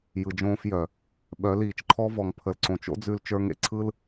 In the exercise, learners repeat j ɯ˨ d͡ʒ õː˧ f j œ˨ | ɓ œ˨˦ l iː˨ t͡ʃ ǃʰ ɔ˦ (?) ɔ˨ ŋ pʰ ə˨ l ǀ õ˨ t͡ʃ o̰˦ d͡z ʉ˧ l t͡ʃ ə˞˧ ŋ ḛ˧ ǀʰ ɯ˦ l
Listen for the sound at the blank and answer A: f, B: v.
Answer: B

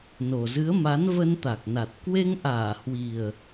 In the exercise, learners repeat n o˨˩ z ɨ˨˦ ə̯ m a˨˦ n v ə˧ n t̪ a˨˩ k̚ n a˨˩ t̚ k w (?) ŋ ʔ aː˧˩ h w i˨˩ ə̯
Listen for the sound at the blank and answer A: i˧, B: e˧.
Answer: B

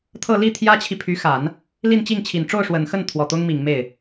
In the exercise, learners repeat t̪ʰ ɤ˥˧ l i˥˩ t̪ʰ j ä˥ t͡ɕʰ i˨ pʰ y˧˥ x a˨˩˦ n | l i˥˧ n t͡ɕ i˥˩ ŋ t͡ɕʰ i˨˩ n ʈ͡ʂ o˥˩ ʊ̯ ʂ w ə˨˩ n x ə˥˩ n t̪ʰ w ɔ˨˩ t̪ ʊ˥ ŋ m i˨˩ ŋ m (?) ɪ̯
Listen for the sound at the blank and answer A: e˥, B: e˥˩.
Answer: B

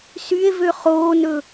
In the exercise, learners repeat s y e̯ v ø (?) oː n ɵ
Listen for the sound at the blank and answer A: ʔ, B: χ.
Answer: B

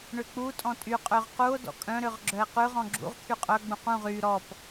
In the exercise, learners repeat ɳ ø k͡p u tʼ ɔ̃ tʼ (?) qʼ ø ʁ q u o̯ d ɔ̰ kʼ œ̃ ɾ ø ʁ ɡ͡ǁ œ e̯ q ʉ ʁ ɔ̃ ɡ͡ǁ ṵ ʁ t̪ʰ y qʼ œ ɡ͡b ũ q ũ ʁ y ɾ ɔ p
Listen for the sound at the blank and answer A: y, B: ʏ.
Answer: A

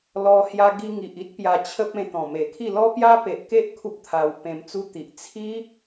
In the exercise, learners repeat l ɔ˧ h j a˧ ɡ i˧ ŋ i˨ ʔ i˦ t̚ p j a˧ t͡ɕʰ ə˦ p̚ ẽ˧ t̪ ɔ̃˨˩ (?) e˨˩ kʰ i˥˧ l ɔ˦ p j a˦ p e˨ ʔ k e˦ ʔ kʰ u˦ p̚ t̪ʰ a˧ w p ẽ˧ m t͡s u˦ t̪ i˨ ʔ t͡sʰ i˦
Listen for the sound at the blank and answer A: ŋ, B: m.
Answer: B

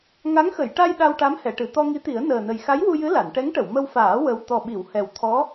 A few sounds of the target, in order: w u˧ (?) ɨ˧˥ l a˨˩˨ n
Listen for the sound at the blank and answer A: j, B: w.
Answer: A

